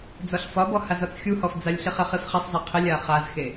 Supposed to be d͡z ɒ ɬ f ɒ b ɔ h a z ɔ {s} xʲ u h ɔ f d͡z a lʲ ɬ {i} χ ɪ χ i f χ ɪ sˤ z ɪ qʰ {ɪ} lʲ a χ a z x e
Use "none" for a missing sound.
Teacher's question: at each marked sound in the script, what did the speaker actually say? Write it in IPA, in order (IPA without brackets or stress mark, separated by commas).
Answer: t͡s, i, ɪ